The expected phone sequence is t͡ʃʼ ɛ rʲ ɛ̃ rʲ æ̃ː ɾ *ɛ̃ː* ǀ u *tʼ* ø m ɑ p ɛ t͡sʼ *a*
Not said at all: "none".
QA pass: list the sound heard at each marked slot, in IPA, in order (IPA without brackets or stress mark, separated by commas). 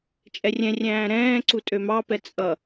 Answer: ɛ̃ː, tʼ, ʌ